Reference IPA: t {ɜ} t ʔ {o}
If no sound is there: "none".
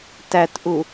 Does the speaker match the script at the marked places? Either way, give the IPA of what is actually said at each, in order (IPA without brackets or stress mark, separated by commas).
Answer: æ, u